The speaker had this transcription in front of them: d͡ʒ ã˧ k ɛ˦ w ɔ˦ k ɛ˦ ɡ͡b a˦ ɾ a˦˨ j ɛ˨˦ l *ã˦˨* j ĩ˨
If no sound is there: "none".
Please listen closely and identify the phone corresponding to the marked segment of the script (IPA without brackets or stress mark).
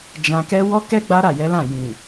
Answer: ã˦˨